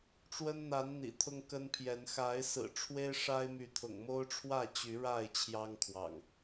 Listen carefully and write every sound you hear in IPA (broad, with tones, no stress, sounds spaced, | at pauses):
ʈ͡ʂ w ə˦ n n̪ a˨˦ n n̪ ḭ˨˩ t̪ʰ ʊ˦ ŋ k ə˦ n pʰ j ɛ˨˦ n x a˨˦ ɪ̯ s ɹ̩˨˩ ʈ͡ʂʰ w e˦ ɪ̯ ʂ a˦ ɪ̯ m y˨˦ t̪ʰ ʊ̰˨˩ ŋ m o˦ ʊ̯ ʈ͡ʂʰ w ä˥˨ t͡ɕ y˨˦ ɻ a˥˨ ɪ̯ t͡ɕʰ j ɑ˦ ŋ kʰ w ɑ̰˨˩ ŋ